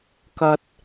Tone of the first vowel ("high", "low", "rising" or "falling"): high